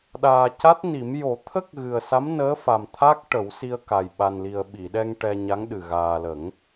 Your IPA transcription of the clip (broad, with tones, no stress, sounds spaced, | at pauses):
ɗ aː˨˩ c a˦˥ t̚ n i˨˩˦ m j o˨˩˦ t̪ʰ ə˦˥ k̚ ɣ ɨ˨˩ ə̯ s a˧˥ m n əː˧˥ f a˨˩ m t̪ʰ a˦˥ k̚ ʈ ə˨˩˦ w s i˧ ə̯ k a˨˩ j ɓ a˨˩ n l i˨˩ ə̯ ɓ i˨˩˨ ɗ ɛ˧ ŋ ʈ ɛ˧ ɲ a˧˥ ŋ ɗ ɨ˨˩ ɣ aː˨˩ l ə˨˩˦ ŋ